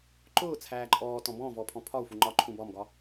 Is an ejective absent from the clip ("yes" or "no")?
no